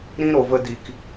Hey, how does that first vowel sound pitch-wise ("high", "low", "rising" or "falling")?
high